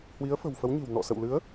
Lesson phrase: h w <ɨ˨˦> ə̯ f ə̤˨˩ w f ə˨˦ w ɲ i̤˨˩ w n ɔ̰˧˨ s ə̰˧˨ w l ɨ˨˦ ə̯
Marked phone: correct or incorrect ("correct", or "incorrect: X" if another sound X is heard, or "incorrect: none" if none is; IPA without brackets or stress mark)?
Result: incorrect: i˨˦